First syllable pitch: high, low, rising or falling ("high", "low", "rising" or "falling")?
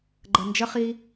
low